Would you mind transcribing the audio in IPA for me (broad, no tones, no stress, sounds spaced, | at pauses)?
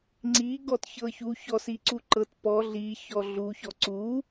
ŋ͡ǀ i ɡ ɔ t ç ɤ ç u ç ɔ s i ǀ u ǃ ɤ t p ɔ ɮ i ç ɔ ɮ u ç ɔ ǀ u